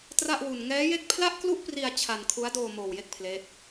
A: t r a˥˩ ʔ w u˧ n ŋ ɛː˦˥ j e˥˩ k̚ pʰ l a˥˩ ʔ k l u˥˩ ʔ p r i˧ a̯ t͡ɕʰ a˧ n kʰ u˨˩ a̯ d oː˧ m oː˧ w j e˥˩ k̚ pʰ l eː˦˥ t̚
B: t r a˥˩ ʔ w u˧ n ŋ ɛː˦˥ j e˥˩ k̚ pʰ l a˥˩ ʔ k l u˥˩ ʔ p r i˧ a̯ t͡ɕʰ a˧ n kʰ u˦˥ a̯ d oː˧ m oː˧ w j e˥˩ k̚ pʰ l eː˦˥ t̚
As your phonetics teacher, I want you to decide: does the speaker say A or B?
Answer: B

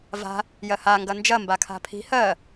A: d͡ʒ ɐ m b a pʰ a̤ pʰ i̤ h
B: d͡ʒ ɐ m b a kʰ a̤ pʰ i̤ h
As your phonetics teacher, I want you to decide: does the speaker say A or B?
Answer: B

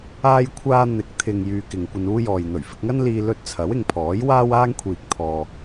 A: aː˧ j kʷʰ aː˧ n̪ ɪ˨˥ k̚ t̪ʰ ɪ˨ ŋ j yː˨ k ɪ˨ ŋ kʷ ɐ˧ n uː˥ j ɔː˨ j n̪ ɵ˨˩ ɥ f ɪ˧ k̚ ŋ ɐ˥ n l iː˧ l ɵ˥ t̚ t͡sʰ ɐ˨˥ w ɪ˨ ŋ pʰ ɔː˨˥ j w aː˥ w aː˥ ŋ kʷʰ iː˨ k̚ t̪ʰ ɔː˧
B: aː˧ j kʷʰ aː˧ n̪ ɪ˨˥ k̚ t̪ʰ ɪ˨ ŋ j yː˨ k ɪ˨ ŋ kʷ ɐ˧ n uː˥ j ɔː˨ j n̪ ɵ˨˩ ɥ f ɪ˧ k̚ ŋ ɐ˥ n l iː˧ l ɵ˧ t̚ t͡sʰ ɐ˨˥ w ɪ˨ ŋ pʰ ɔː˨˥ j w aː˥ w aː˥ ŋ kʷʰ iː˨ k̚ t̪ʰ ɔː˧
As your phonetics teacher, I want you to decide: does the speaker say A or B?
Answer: B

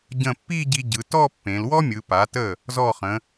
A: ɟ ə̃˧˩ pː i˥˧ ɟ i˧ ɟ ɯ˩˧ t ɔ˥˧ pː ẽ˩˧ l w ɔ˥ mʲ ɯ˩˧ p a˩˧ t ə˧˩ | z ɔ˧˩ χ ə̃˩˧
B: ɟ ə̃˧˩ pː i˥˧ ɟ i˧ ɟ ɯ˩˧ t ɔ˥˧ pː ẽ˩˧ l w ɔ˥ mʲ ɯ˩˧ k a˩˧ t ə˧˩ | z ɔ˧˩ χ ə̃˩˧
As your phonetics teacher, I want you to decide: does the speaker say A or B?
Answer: A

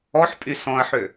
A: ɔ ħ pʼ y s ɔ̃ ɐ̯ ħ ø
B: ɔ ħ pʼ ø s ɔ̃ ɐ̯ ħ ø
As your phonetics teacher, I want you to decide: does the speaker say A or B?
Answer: A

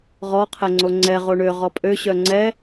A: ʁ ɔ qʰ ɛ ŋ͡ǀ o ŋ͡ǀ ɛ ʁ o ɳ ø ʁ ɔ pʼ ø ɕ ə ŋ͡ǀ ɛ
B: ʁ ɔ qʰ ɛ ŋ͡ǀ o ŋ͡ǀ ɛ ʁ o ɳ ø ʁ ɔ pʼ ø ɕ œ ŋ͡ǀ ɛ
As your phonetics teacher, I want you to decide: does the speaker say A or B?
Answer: B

